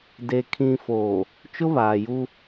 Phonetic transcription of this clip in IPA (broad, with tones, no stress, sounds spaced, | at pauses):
d e˨ kʰ ĩ˨ f oː˨ | t͡ʃ ʊ˦ β aː˨ j u˦